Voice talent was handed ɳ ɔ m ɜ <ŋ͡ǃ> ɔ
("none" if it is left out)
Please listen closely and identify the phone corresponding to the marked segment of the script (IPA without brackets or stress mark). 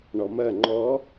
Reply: ŋ͡ǃ